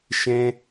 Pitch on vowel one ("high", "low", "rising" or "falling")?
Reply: high